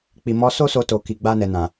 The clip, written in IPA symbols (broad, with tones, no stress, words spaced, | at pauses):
k͡pi˨mɔ˨˦ so˦ so˧to˨ki˨ ɡ͡ba˧nɛ˨nã˨